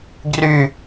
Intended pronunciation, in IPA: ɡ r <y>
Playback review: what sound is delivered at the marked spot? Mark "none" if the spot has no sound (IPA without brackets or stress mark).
y